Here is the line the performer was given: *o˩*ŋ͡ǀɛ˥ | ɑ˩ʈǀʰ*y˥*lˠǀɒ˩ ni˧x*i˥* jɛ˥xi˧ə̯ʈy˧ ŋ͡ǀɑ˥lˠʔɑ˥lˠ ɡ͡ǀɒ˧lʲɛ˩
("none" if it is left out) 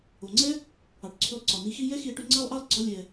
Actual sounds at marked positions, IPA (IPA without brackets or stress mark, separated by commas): o˩, y˧, i˥